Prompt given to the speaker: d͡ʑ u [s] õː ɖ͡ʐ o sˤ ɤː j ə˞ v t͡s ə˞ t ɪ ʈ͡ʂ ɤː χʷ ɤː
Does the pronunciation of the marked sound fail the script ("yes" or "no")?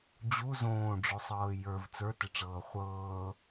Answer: yes